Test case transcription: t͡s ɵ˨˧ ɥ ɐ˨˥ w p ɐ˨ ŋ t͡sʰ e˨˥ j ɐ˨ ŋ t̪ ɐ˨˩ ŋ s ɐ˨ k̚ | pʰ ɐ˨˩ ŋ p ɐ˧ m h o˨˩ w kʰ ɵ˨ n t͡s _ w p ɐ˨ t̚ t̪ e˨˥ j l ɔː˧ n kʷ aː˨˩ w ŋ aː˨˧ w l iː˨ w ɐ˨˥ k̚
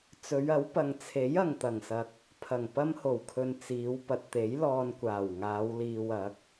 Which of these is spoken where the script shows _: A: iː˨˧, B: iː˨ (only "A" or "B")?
A